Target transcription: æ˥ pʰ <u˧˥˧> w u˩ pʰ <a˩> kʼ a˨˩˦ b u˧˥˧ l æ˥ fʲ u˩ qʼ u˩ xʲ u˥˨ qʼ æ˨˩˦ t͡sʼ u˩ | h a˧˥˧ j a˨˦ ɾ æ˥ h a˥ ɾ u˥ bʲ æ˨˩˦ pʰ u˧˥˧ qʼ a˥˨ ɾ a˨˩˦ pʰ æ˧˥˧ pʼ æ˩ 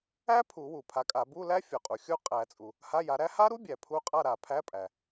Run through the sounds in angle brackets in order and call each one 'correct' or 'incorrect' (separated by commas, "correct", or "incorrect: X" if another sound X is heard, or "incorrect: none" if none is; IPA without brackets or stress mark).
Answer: incorrect: u˨˩˦, incorrect: a˨˦